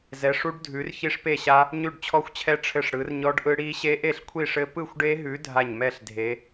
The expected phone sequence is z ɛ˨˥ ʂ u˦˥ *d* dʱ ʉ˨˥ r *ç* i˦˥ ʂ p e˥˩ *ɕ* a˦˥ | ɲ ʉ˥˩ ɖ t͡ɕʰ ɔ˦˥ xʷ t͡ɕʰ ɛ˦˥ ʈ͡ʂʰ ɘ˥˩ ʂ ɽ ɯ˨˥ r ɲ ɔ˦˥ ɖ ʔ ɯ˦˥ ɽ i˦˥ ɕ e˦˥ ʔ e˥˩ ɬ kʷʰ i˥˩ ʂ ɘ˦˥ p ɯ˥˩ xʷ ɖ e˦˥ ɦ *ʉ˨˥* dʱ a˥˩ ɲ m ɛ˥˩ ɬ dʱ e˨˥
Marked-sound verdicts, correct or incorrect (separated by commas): incorrect, correct, correct, correct